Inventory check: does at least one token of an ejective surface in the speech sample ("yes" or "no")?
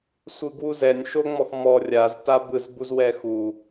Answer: no